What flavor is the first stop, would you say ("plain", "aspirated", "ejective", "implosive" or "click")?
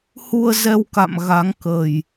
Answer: plain